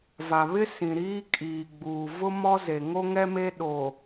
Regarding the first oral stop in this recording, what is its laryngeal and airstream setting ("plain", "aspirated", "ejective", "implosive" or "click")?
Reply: ejective